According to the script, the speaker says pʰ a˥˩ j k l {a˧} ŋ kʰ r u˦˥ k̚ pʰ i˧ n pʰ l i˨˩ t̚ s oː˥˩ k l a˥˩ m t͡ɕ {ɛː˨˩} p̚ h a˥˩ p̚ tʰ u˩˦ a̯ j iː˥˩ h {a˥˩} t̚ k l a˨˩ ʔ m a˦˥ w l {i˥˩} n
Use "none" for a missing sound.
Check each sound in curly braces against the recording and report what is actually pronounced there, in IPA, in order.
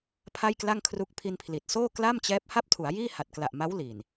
a˥˩, ɛː˦˥, a˨˩, i˨˩

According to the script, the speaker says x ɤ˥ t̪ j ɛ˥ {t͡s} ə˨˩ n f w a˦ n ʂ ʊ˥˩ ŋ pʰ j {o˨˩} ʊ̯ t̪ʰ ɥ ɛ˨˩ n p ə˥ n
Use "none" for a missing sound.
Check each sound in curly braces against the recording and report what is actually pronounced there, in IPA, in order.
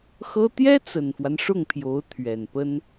t͡s, o˧˥

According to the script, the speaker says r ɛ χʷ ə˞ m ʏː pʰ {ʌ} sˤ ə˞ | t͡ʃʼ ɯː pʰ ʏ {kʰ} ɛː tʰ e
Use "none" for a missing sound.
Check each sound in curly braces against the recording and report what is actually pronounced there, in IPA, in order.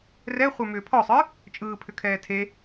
ɔ, kʰ

